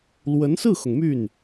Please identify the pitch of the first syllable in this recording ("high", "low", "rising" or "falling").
rising